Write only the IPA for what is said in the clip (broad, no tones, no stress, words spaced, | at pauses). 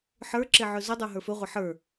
ħə˞ǁe ʕɵzodˤə˞ ɦə˞fɵʁʷa ħə˞